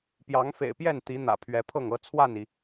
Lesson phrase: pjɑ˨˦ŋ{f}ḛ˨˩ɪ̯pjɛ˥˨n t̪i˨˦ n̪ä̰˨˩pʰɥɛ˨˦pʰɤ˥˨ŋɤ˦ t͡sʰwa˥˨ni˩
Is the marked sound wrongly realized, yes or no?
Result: no